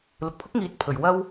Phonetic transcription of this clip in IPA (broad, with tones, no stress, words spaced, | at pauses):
lʊ˨k̚pʰʊ˥k̚ŋiː˨˥t̚ pʰɵ˨˩ɥwɐ˥w